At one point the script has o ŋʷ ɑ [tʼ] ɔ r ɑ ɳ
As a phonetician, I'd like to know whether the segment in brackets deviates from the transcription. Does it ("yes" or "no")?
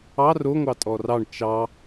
no